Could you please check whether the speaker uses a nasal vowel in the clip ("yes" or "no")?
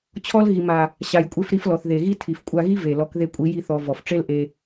no